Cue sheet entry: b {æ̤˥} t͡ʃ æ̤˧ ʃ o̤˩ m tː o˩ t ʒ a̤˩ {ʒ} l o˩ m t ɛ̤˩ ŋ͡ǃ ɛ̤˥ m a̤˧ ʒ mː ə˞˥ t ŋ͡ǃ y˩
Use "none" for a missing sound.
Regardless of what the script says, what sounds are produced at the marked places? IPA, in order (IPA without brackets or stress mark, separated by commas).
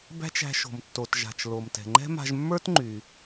æ̤˥, t͡ʃ